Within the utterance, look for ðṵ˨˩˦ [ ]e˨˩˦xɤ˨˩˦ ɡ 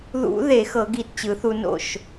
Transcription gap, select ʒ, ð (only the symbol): ð